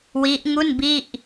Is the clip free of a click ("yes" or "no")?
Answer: yes